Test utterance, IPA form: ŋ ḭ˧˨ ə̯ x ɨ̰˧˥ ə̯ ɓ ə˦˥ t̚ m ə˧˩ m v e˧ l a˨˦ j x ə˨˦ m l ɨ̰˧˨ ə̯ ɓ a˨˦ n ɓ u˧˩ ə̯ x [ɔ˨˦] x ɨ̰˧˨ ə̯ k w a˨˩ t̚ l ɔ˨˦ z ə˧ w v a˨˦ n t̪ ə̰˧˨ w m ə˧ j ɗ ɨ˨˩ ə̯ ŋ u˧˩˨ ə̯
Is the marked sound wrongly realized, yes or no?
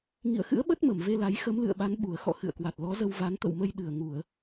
yes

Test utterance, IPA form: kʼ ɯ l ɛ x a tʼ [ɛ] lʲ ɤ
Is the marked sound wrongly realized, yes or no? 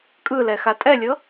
no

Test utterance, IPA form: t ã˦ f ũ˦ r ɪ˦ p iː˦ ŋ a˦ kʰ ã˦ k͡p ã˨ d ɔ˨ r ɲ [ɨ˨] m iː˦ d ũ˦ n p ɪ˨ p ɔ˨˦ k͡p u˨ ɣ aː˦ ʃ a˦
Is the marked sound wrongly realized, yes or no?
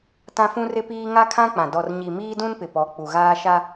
yes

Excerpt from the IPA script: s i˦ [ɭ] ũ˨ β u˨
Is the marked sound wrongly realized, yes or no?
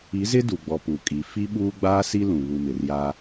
yes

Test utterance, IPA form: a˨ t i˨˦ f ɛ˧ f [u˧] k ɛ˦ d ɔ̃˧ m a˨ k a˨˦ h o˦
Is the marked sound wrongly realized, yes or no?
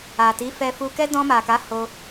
no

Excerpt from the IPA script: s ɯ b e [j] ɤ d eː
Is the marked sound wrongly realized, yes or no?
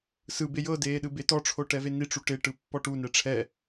no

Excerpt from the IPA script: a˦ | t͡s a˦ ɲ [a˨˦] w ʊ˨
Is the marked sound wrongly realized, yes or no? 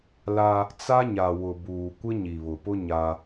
yes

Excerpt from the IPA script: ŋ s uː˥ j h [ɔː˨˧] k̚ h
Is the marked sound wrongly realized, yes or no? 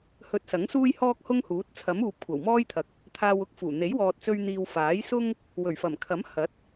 yes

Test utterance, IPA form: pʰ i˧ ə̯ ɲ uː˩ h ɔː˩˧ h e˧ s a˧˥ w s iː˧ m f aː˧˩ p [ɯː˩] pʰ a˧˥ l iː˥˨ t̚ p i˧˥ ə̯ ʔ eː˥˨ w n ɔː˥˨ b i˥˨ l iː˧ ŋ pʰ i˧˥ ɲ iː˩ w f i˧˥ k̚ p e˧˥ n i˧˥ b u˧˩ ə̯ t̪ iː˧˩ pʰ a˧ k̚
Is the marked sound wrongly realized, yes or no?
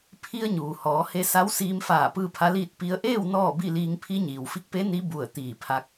yes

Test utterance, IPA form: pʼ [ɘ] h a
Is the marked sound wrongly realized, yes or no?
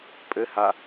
no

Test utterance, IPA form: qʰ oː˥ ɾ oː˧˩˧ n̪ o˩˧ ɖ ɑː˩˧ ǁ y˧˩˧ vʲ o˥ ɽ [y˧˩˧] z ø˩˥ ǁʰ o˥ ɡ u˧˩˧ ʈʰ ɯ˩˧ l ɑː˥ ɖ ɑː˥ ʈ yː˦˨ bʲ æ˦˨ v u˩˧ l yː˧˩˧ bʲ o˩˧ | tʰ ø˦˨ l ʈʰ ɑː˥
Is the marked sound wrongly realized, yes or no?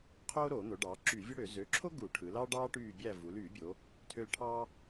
yes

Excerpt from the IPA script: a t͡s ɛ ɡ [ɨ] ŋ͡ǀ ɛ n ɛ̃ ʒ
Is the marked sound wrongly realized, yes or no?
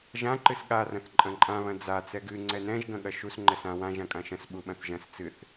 no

